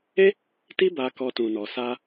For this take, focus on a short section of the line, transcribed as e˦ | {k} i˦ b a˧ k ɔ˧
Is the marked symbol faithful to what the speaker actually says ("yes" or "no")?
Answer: no